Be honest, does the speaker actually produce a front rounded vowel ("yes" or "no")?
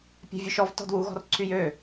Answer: yes